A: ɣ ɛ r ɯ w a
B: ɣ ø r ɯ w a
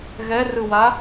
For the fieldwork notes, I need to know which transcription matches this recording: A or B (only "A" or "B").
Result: A